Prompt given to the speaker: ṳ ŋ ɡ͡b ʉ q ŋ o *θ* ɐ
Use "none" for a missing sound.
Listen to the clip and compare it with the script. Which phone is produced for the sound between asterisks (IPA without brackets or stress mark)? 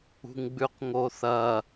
θ